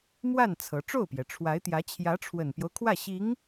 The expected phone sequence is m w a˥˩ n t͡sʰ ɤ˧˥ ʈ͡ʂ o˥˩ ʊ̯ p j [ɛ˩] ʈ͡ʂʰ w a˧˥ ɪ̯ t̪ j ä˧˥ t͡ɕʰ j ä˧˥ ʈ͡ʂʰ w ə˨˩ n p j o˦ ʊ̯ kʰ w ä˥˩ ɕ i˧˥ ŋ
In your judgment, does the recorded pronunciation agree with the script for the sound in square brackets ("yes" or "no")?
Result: yes